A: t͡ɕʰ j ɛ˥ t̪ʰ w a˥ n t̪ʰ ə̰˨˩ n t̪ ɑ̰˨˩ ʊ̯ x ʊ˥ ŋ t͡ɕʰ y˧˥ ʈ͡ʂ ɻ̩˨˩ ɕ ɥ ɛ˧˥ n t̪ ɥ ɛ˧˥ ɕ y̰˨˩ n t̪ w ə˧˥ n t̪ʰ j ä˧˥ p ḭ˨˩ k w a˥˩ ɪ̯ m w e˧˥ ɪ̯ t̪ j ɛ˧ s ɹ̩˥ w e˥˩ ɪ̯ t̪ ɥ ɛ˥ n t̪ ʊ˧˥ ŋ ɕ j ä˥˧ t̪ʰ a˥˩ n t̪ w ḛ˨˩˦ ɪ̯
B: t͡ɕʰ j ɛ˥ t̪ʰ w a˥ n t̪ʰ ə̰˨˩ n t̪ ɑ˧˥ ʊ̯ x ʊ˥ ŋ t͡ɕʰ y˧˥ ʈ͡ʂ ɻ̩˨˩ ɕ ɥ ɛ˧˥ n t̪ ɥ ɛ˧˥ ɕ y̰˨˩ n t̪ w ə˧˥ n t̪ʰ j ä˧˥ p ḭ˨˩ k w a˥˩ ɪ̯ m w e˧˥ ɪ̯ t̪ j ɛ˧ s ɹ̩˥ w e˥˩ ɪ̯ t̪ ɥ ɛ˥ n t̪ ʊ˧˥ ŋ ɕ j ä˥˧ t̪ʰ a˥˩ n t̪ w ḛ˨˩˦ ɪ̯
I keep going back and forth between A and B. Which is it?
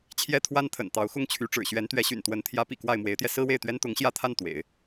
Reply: B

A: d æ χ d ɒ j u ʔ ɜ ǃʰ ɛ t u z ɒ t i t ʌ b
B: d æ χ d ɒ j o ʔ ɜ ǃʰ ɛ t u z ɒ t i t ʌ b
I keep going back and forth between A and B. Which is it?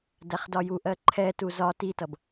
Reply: A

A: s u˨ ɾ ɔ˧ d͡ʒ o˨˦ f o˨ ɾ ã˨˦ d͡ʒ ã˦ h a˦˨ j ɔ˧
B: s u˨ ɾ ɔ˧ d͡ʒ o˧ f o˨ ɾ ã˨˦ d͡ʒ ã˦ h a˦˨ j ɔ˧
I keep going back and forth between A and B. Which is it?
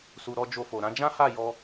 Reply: B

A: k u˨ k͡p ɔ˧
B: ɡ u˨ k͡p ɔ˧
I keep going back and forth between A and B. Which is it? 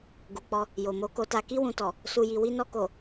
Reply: B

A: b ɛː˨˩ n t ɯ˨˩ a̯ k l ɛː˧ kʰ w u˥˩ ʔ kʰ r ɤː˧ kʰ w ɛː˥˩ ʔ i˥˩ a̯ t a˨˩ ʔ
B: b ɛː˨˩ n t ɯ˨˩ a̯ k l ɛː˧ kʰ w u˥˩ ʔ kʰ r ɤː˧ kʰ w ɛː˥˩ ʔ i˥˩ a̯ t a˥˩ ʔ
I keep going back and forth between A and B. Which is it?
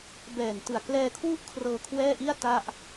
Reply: B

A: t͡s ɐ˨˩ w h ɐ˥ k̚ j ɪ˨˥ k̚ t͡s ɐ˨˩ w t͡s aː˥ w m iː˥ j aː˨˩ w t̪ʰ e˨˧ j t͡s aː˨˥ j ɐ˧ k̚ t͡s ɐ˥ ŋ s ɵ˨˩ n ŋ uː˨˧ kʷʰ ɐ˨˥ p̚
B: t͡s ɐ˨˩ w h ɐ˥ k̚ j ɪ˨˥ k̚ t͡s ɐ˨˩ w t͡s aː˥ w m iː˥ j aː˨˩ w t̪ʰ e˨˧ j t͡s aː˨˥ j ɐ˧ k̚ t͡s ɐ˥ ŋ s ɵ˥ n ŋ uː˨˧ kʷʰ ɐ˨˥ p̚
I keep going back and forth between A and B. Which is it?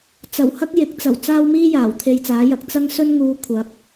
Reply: B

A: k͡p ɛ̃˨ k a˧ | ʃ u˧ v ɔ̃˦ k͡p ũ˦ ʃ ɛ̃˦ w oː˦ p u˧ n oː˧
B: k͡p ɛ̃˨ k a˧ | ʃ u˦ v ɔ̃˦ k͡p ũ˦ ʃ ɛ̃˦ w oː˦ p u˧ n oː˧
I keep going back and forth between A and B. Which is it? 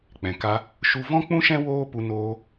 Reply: A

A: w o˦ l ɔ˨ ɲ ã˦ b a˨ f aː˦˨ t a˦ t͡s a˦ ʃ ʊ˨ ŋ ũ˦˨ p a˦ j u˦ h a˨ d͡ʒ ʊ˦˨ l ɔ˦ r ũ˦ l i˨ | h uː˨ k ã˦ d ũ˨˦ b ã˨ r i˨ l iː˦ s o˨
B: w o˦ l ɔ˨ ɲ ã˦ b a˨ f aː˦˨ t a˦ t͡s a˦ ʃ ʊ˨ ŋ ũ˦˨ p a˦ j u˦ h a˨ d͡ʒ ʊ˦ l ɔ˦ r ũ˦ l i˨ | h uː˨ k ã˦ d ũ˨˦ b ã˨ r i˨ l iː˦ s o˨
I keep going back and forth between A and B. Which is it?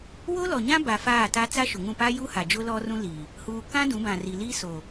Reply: B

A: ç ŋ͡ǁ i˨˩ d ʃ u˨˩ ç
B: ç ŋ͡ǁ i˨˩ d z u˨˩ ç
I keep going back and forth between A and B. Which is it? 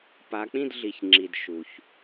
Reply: A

